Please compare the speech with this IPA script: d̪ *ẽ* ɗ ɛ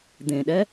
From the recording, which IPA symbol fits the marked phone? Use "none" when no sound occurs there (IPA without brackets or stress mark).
ẽ